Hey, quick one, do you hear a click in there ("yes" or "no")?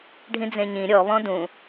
no